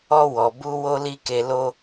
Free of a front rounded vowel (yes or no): yes